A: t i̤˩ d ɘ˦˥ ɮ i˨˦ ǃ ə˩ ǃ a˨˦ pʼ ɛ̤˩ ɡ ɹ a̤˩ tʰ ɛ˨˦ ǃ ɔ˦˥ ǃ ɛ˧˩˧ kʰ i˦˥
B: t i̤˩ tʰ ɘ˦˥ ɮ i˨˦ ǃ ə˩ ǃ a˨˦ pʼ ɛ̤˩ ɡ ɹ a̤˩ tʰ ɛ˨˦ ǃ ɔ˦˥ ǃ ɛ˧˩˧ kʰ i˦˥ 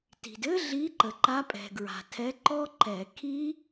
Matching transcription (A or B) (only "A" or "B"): A